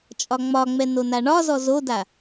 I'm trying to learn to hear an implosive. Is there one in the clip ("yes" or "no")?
no